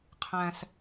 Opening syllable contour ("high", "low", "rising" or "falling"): low